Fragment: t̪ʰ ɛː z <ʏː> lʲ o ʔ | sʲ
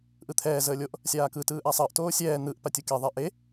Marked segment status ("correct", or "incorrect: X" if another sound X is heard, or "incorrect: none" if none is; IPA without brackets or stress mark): incorrect: əː